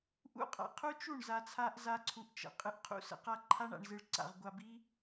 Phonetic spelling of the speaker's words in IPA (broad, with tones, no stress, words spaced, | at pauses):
ʔṵ˧qʼa̰˨qʰu˦t͡ʃu˦˨ɳ za˧t͡sʰa˦ʔ za˦ǀʰu˧ʔt͡ʃə̰˨ qʼɨ˧ʔqʰṵ˦˨sə̰˦qa˦ ǃʰa˦ɳa̰˧ɳ zɨ˧ɭǀa̰˧ʁɡʷa˧bi˦